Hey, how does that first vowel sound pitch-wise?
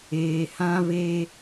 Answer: low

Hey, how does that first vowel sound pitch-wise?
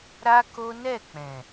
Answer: high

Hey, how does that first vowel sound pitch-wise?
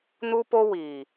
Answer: high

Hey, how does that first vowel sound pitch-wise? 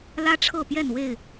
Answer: high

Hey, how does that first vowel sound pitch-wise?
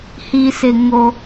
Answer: low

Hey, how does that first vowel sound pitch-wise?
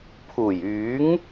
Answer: low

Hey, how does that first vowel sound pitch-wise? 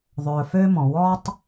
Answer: low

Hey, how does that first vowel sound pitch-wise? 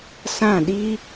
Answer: falling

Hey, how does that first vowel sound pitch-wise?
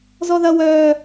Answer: high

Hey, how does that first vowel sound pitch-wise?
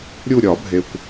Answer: falling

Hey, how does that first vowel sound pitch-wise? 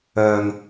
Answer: low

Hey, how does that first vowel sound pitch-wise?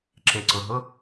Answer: low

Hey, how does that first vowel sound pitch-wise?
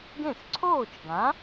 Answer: falling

